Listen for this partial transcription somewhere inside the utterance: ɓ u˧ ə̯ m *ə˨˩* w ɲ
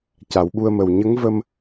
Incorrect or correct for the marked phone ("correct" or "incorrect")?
correct